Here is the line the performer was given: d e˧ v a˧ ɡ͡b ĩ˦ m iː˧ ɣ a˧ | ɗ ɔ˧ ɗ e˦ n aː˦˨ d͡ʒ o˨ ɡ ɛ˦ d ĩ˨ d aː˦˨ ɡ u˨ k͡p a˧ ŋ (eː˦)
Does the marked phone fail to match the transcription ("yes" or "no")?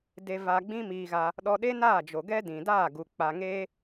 no